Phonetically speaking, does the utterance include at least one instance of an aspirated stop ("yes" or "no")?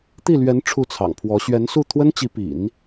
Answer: yes